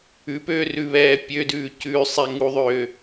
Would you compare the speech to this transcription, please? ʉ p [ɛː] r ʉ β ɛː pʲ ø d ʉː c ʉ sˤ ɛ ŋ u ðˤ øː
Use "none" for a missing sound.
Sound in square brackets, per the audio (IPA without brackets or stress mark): øː